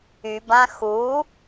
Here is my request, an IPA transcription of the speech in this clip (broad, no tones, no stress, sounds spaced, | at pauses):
y b ã x u